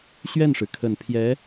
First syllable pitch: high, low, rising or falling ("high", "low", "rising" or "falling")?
falling